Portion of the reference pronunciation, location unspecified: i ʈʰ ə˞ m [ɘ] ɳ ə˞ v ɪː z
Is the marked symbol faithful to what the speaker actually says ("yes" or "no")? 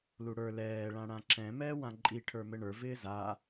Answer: yes